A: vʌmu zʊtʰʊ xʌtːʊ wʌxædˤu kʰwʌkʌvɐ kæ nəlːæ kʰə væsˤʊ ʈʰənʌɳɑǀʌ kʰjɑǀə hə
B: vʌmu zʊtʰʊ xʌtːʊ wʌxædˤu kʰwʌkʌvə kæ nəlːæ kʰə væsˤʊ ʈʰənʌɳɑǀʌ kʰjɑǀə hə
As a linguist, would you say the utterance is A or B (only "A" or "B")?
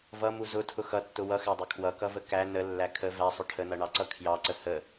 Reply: B